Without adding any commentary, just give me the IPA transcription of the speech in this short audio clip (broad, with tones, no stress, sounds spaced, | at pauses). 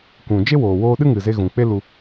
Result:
kʷ ũ˨ d͡ʒ e˦ w oː˨ w oː˧ ɗ ɨ˦ ŋ ɨ˨ z e˧ ɣ ũ˨ k͡p e˦ l u˧